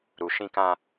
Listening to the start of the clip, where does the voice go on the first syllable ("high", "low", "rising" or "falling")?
low